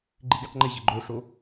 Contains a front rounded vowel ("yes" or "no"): no